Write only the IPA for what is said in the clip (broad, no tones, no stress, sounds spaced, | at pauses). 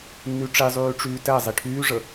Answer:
nː y ʈ͡ʂ i zˤ yː ʈ͡ʂ yː t ɛ zˤ i ʈʰ yː ʐ ə